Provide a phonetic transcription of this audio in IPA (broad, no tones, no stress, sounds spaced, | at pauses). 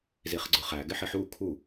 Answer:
z i χ ɡ͡ǀ ʊ χ æ ɡ ɪ ħ ɪ ħ u kʰ u